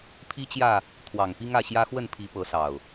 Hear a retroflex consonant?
no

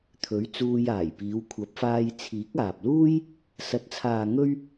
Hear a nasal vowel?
no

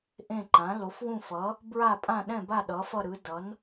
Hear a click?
yes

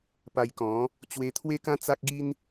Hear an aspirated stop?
yes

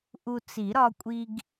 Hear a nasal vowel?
no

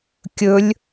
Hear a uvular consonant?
no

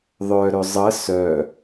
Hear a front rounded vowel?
yes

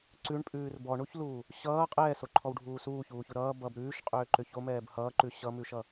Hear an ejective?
yes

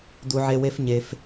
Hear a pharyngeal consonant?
yes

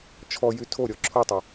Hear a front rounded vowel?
yes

